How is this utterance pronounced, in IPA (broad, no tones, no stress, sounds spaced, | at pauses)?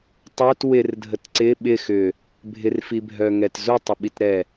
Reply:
tˤ œ t w ɪ r dʱ ə t ǀ ɪ ɓ ɪ x ʏ | bʱ ɪ r f i bʱ œ ŋ ɛ t z u tˤ ɪ ɓ i t ɾ ɛ